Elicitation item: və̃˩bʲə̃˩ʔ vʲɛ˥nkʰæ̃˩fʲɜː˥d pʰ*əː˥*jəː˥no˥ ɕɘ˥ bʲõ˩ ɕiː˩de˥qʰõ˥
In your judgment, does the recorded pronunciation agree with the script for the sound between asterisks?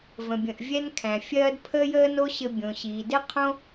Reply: yes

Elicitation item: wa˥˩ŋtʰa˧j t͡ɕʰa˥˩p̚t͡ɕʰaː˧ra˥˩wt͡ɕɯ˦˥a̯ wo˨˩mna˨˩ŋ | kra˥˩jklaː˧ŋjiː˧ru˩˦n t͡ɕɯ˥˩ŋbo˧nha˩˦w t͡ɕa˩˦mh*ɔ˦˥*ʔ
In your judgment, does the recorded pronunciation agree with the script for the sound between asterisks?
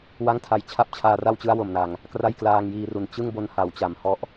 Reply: yes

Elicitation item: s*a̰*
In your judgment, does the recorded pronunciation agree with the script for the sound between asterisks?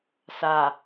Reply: no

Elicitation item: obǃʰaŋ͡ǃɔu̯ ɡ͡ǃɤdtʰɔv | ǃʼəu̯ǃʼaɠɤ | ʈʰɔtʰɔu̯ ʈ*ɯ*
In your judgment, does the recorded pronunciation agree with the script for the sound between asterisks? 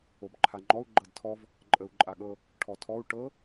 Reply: no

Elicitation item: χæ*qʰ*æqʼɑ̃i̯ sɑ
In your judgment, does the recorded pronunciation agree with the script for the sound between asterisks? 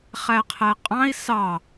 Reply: yes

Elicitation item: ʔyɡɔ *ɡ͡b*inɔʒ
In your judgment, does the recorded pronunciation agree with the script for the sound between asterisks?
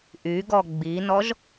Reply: yes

